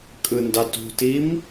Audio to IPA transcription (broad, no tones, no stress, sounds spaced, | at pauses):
kʼ ɯ n d ɑ t ṳ t i m